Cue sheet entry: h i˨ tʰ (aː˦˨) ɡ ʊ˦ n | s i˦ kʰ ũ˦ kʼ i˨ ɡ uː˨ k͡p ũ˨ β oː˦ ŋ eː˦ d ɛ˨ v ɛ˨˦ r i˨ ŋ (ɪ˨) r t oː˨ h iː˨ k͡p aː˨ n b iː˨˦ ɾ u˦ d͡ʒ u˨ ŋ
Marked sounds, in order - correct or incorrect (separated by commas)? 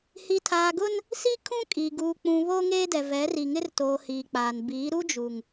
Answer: incorrect, incorrect